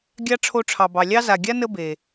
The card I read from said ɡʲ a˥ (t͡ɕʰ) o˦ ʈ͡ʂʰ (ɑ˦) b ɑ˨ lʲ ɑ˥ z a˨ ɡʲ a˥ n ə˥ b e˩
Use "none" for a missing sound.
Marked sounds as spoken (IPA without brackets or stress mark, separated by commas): ʈ͡ʂʰ, ɑ˨